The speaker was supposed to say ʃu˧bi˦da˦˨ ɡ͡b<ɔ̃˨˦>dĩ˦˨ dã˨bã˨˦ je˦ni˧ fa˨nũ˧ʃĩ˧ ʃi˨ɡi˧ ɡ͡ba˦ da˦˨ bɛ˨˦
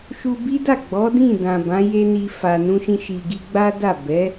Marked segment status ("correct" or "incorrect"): incorrect